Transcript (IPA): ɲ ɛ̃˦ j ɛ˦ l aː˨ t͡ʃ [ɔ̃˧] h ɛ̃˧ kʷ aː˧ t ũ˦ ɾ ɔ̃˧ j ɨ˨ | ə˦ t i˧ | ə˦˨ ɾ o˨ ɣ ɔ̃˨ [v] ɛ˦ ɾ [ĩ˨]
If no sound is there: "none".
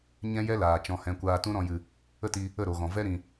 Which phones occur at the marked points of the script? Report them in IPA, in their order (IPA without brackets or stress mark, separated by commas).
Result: ɔ̃˧, v, ĩ˨